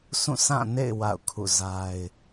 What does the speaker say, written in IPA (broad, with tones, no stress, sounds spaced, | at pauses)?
s ũ˦˨ sʰ ã˦˨ n ḛ˦˨ ɪ̯ w a̰˦˨ ʊ̯ kʰ ṵ˦˨ z a˦ ɪ̯